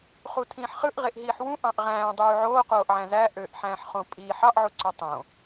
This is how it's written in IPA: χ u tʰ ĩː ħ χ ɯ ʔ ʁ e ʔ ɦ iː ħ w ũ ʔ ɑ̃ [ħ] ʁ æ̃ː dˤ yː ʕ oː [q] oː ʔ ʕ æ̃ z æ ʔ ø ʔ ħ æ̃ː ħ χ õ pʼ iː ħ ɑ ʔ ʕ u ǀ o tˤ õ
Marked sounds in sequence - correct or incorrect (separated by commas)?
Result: incorrect, correct